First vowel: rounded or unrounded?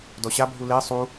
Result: rounded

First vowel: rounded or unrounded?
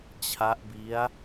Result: unrounded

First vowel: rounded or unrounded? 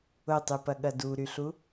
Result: rounded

